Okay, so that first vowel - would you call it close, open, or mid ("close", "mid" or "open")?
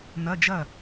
open